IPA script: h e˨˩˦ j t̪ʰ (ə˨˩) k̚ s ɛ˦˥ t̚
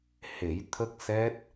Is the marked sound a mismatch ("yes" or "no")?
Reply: yes